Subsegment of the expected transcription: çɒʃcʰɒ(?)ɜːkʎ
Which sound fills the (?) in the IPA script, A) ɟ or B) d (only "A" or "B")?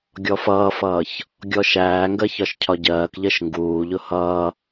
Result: A